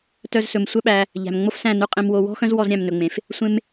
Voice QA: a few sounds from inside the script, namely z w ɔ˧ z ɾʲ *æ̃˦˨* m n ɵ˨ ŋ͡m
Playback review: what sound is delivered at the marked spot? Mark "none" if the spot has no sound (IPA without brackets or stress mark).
æ̃˦˨